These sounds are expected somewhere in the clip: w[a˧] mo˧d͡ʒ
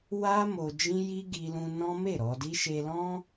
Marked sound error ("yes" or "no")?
yes